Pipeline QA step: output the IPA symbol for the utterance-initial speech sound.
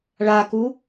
ɭ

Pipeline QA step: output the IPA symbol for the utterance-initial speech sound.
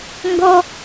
ŋ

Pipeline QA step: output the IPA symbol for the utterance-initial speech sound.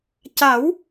c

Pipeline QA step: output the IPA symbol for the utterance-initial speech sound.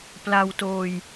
p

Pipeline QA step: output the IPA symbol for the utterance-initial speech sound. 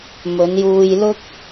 m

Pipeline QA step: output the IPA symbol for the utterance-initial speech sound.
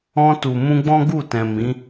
ɔ̃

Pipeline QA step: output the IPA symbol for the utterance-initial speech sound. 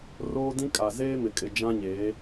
r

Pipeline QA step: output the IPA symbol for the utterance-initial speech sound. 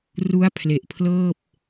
r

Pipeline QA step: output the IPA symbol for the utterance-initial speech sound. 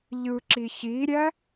ʎ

